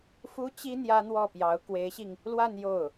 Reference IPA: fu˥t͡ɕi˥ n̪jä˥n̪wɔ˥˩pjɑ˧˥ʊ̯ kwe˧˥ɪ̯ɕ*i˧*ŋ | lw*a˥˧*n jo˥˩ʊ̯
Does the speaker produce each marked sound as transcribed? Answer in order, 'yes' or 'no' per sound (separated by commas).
yes, yes